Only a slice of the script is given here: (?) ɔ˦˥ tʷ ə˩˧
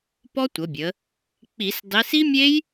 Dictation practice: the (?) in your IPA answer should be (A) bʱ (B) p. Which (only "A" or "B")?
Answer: B